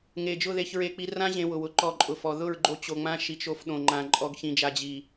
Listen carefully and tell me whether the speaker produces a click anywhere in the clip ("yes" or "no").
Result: yes